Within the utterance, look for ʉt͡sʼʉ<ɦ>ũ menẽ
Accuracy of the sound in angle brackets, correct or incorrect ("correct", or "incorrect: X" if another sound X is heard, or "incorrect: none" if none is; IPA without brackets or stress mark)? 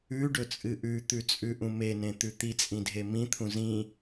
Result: incorrect: ʔ